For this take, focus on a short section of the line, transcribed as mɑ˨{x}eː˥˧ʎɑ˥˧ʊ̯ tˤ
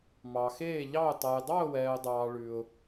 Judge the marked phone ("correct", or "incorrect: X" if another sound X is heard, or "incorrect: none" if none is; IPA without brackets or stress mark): correct